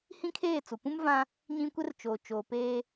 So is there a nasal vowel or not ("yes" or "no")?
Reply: yes